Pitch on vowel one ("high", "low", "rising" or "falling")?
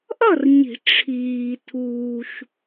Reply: falling